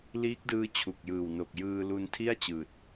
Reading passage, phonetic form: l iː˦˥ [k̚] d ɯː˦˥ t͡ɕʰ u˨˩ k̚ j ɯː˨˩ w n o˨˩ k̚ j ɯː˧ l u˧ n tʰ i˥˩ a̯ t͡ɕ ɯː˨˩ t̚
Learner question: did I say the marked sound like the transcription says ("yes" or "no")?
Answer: yes